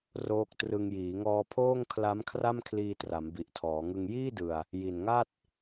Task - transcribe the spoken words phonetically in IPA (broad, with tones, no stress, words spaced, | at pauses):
roː˦˥k̚trɯ˧ŋ jiː˩˦ŋɔː˧pʰoː˥˩ŋ kʰla˦˥m kʰra˥˩mkʰliː˧tra˩˦m bi˨˩ʔtʰɔː˩˦ŋɯ˧ŋ jiː˥˩dɯ˨˩a̯ | ji˨˩nŋa˥˩t̚